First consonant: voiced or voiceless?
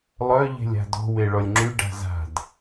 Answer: voiced